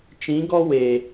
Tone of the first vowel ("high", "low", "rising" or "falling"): rising